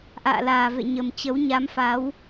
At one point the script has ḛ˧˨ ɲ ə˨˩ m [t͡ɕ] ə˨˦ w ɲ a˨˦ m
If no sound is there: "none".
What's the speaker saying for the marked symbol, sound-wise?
t͡ɕ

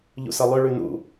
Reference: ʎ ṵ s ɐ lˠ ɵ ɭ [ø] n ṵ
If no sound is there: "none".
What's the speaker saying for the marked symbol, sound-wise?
ʉ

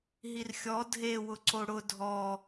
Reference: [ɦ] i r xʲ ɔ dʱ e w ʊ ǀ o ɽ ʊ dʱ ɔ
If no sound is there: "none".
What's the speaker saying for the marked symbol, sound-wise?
ɦ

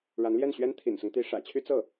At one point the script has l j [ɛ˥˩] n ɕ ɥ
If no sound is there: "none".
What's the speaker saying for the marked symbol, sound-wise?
ɛ˥˩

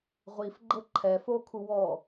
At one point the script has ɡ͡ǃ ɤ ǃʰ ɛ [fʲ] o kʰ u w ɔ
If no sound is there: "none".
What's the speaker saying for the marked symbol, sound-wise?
f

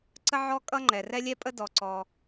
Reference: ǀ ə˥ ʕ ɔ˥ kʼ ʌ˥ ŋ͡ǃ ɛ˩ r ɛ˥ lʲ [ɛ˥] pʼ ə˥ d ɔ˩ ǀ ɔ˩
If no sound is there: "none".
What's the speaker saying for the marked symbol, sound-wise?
ɛ˥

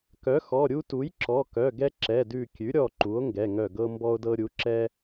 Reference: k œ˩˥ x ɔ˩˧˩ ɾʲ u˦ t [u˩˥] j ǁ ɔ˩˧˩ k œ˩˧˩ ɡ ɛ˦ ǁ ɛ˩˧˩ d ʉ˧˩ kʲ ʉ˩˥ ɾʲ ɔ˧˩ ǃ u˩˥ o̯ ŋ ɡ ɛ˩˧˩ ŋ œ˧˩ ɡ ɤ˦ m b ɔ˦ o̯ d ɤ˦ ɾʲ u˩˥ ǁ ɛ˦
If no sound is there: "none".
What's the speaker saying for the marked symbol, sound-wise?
u˩˥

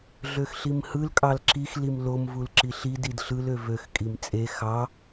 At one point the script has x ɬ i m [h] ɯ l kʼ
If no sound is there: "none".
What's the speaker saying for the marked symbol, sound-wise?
h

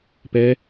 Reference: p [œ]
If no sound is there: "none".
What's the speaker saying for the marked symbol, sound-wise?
ɛ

